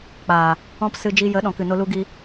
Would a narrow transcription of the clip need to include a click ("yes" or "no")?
no